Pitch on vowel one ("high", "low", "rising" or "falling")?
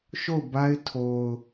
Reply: falling